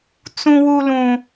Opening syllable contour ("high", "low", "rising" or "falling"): high